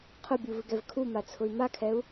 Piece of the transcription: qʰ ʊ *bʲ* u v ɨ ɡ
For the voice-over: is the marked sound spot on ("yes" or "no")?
yes